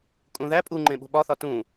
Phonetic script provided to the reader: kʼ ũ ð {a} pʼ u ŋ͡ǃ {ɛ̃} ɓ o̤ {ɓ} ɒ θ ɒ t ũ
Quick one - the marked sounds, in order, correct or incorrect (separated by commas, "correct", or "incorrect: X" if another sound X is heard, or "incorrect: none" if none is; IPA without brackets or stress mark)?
incorrect: æ, incorrect: ẽ, correct